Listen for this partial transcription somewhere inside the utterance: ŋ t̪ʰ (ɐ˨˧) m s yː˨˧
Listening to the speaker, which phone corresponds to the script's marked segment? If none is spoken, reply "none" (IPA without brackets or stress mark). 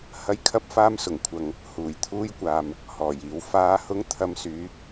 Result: ɐ˨˧